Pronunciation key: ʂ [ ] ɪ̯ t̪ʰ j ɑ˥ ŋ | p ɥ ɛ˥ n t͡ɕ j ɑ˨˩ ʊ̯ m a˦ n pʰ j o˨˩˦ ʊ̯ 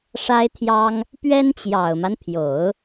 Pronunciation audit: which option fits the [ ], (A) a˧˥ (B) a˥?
B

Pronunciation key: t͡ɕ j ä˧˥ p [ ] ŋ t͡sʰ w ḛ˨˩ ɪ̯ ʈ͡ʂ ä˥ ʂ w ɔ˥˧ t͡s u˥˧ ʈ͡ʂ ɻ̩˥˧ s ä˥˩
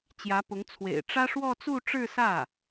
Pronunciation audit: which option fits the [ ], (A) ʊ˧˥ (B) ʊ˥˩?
A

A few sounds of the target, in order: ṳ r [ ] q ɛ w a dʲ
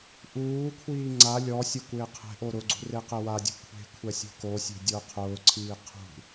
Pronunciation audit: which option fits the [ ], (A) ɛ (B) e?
B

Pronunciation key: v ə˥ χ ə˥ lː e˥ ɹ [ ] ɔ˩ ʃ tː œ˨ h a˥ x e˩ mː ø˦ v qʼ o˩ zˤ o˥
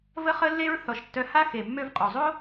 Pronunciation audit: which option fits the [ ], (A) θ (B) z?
A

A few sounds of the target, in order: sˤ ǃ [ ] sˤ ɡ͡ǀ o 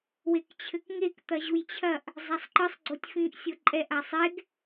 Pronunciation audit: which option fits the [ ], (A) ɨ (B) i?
A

